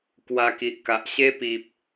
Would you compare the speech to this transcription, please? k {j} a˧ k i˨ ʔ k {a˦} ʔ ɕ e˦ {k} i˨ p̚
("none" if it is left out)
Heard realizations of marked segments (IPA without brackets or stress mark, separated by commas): w, a˨, p